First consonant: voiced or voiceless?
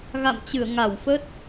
voiced